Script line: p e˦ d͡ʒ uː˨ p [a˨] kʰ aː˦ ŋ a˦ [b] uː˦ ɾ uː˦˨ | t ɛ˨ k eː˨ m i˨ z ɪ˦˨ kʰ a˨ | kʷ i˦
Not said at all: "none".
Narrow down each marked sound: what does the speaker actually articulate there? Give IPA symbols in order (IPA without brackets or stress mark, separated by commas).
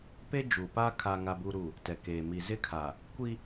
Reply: a˦, b